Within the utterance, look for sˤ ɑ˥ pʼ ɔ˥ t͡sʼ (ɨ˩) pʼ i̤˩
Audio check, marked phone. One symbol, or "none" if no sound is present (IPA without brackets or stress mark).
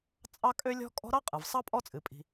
ɨ˩